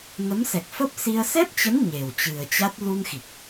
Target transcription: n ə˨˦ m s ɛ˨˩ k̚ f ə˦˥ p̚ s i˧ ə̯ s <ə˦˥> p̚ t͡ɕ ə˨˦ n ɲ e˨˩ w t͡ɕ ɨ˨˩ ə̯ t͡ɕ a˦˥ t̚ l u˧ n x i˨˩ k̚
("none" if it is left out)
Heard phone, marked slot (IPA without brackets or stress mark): ɛ˦˥